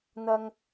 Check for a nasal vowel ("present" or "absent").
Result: absent